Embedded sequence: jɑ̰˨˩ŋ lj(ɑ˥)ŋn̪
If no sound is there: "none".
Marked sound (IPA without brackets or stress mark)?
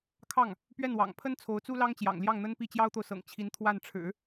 ɑ˥˩